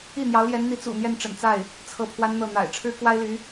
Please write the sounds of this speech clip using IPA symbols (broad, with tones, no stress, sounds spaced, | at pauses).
i˥˩ n̪ j ɑ˧˥ ʊ̯ l j ɛ˧˥ n n̪ i˧˥ t͡s ṵ˨˩ n̪ j ɛ˥˩ n ʈ͡ʂ ə̰˨˩ n t͡s a˥˩ ɪ̯ | t͡sʰ ɤ˥˩ pʰ w a˥ n n̪ ɤ˥˩ n̪ a̰˨˩ ɪ̯ ʈ͡ʂʰ ɻ̩˥ k w a˥ ɪ̯ l y˧˥